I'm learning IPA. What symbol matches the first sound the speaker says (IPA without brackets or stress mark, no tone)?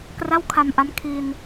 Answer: k